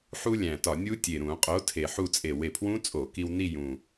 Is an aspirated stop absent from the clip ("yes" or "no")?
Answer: no